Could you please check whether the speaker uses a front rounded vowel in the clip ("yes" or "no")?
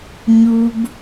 no